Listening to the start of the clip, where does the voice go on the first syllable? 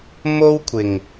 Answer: high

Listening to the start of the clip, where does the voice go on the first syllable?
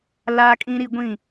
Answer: high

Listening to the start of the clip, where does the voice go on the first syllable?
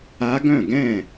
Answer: rising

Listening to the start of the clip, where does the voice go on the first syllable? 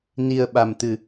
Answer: low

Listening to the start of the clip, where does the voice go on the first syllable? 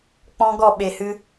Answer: high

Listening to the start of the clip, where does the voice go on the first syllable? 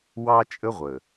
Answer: high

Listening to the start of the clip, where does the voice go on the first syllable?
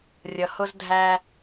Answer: low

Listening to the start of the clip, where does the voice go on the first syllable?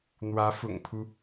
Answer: rising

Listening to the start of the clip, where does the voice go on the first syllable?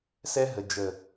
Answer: high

